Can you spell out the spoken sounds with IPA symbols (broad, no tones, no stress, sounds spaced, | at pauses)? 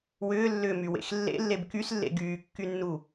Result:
w ʏː lː ʏː m y w ḛ x lː ḛ lː e b k y s lː ḛ ɡ yː kː y nː u